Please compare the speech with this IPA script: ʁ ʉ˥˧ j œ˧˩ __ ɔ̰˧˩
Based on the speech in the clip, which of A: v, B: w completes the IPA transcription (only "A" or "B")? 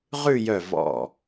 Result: A